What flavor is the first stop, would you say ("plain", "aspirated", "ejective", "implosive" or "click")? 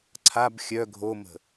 click